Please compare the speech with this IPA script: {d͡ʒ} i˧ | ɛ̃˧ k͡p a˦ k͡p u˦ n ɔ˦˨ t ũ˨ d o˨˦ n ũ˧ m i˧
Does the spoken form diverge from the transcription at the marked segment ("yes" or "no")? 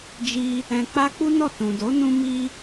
no